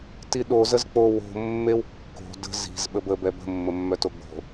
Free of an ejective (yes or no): yes